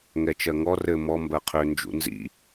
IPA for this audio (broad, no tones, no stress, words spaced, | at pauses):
ŋɛt͡ʃɜŋɔ rɘ mɔ mbɜqʰø nd͡ʒṵnzḭ